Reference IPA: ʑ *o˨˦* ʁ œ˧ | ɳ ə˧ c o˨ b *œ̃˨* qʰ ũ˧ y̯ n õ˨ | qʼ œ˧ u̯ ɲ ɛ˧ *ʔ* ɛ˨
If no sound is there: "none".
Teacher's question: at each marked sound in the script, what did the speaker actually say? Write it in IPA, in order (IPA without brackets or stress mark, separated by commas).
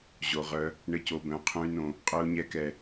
o˨, œ̃˨, k